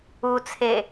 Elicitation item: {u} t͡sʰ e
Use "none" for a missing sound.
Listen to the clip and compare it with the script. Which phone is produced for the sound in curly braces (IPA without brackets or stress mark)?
u